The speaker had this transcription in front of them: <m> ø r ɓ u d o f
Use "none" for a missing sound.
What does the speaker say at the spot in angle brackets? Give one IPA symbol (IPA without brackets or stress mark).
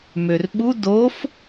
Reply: m